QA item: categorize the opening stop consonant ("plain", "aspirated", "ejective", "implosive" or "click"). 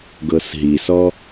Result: plain